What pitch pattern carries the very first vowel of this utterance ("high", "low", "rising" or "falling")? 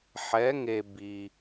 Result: rising